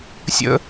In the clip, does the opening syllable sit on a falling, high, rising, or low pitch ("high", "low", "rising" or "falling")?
high